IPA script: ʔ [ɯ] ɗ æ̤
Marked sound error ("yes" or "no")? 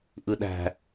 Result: no